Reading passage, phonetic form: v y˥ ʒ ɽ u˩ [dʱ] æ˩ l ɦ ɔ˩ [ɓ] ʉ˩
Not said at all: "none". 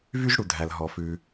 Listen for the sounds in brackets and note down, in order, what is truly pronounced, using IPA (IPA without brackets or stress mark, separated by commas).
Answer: dʱ, f